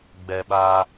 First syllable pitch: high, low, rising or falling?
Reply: high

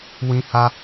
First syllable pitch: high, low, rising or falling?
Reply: high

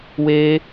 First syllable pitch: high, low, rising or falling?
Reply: high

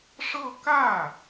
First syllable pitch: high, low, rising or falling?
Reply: falling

